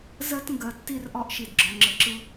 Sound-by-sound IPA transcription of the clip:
z ɜ˦ t ŋ ɡ ɜ˨ tː i˦˨ r ʔ ɒ˦ ʔ ʃ i˨ d ɡ͡ǁ ɒ˨ ŋ͡ǁ ə˨ ǁ ɯ˦

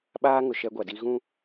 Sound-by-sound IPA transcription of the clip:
ɓ aː˦ ŋ ʊ˨ ʃ ɛ˦ ɡʷ a˨ d i˦ ɣ ũ˦

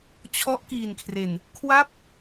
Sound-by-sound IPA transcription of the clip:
t͡ɕʰ ɔ˦˥ ʔ k iː˨˩ n kʰ r e˨˩ n | kʰ w a˥˩ p̚

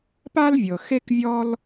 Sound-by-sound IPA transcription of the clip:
p a˥ l vʲ ɤ˩ x e˥ k vʲ ɔ˥ l

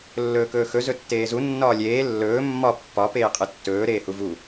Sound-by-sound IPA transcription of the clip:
lː ɵː k ɵː x ɵ z ɵ tː eː z u nː ɒː lʲ eː lː ɵː mː ɒ pː ɒ p eː qʼ ɨ tː ɵː ɾ eː h u v u

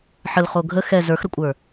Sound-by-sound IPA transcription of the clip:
ħ ə l χ o ɡʱ ə x ɛ z ə˞ x ɾ ə kʷʼ ə˞

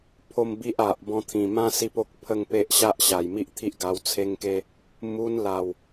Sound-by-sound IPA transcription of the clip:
pʰ o˥˧ m b i˦ ʔ a˨ ʔ b ɔ̃˧ t̪ʰ ĩ˨˩ m ã˦ s i˦ p o˦ k̚ pʰ ə˥˧ ŋ p e˦ ʔ ɕ a˦ ʔ ɕ a˨˩ j m i˦ ʔ t̪ʰ i˦ ʔ ɡ a˧ w t͡sʰ e˦ ŋ k e˦ | m u˧ n l a˨˩ w

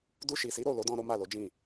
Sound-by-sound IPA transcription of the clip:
d u˧ ʃ i˨ s i˨˦ ɾ o˦˨ l o˨˦ d ɔ̃˧ ɾ o˦ m a˦˨ l o˨˦ d͡ʒ ĩ˦˨

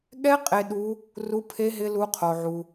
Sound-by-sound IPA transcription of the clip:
ɠ ɛ˦˥ qʼ e˧ ɗ u˦˥ | r u˦˥ pʰ e˦˥ ɦ ɪ˦˥ l u˦˥ qʰ o˧ ʕ u˧

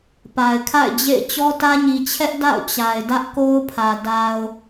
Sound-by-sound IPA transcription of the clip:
p a˨ ɪ̯ kʰ a̰˦˨ ɪ̯ d͡ʑ ḛ˦˨ ɪ̯ t͡ɕ ɔ˦ t ä˦ ɲ i˨ t͡ɕʰ ɛ˦ ʔ d a̰˦˨ ʊ̯ t͡ɕ a˨ ɪ̯ d ä˦ ʔ k o˦ ʊ̯ pʰ ä˨ d a˨ ʊ̯

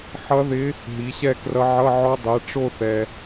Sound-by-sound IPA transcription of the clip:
ħ ʌ˧˥ ð ɪ˧˥ | ɦ i˩˥ ɕ ɛ˥˧ k r ʌ˧˥ ʕ ʌ˧˥˧ ʕ ɔ˧˥ dˤ ɛ˩˥ ʈ͡ʂ o˥˧ θ ɛ˨

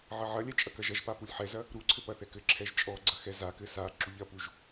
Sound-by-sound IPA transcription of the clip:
ʕ ɐ ʕ ɐ lʲ ɛ t͡ʃʼ ɐ k ɐ ʒ ɐ ʒ p a p u lʲ ħ ɛ z ɐ | ɾ u ǀʰ ɘ p ɐ θ ɛ k ɘ ǁʰ ɛ ʒ t͡ʃʼ ɔ ɡ͡ǀ ɐ x ɛ z a k ɘ s a ǁ u ʎ ɐ p u ʒ

